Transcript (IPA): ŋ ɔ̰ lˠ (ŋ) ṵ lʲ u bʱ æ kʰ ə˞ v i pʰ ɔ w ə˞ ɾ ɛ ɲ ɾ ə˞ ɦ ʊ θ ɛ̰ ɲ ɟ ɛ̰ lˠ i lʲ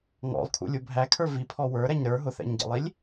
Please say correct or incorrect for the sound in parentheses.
incorrect